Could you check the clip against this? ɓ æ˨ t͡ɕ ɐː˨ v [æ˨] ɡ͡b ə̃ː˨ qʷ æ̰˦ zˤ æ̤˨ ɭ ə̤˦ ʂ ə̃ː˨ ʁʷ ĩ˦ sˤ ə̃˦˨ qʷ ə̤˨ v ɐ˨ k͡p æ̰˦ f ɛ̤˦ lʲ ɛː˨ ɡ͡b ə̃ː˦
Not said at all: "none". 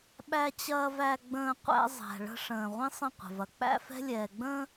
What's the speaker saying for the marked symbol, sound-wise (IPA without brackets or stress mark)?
æ˨